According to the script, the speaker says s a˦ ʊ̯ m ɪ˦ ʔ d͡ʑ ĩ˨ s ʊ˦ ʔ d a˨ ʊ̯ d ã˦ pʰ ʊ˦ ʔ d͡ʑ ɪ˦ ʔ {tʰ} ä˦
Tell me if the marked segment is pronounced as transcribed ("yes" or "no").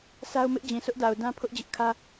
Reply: no